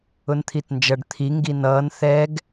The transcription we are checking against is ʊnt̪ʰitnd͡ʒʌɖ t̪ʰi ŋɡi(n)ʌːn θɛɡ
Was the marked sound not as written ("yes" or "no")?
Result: no